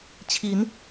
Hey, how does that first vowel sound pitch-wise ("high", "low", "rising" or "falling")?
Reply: rising